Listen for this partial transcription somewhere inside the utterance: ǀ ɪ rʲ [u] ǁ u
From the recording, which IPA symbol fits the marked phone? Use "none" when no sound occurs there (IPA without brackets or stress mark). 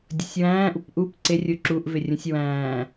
u